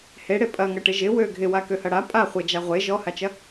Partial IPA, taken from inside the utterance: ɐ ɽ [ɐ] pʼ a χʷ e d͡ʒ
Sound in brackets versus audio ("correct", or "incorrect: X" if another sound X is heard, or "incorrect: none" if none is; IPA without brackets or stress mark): incorrect: a